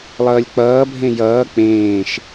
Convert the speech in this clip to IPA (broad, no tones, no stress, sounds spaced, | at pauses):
lˠ ʌː lʲ k͡p ʌː bʱ ẽ j ʌː k͡p ẽː ʃ